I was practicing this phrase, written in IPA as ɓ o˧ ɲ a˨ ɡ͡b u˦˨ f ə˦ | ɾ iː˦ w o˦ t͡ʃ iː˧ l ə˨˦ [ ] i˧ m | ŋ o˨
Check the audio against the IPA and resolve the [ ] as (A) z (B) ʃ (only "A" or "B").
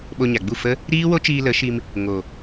B